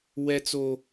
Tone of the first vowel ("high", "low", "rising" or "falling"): low